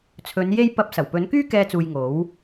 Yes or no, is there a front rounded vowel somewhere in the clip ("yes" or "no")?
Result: yes